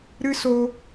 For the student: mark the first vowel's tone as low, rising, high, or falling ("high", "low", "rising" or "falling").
high